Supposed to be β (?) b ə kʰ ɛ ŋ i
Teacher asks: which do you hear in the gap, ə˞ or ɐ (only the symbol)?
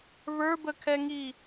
ə˞